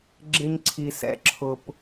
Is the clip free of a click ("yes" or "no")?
no